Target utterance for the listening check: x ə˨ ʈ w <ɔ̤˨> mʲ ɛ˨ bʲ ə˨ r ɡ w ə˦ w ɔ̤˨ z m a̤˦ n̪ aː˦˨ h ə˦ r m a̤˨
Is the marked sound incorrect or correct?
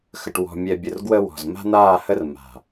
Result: correct